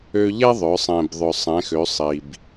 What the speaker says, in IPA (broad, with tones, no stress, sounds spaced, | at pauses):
ø˧ ʎ ɛ˥ ðˤ œ˩˧ sˤ ɛ̃˩ b ðˤ œ˩ sˤ ɛ̃˩˧ x ø˩˧ sˤ i˩ b